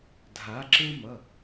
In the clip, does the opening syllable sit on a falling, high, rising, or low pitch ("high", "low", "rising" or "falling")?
rising